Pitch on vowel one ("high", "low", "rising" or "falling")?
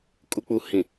low